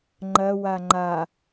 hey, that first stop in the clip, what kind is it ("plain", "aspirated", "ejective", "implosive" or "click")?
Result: click